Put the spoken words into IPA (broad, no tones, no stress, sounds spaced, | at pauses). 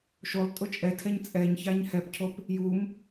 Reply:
ʃ o lˠ tʼ ʊ t͡ʃʼ ɛ tʰ ɛ ɲ t͡sʼ ɛ ɲ ç a ɲ h ɛ p cʰ o p | j u m